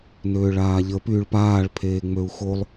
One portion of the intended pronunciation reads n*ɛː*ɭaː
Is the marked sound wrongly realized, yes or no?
yes